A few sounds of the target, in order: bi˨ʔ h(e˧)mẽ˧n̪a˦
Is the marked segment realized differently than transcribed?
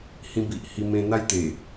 yes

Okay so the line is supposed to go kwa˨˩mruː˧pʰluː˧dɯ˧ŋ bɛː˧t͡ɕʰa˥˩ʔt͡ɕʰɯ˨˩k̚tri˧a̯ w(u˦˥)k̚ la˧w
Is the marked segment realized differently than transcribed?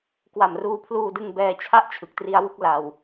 yes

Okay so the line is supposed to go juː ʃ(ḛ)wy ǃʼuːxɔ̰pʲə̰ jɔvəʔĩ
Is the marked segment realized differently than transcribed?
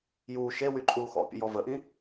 yes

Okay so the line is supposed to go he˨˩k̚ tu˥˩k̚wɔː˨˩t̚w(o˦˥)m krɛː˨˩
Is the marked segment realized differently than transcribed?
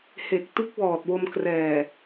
yes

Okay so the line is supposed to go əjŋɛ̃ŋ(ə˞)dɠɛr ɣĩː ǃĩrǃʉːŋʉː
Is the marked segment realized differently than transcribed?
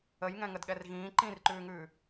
yes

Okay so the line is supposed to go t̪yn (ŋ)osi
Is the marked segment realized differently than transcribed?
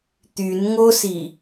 no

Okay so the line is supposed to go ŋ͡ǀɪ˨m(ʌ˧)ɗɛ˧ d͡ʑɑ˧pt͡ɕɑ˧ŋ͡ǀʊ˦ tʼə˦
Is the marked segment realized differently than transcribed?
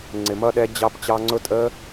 no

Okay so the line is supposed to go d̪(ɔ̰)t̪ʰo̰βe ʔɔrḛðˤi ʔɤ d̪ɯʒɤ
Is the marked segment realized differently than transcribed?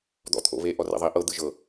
no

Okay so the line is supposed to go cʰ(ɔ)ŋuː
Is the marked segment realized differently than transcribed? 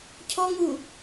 no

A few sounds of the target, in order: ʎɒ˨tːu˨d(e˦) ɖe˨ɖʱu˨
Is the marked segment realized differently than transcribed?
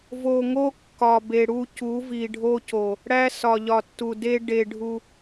no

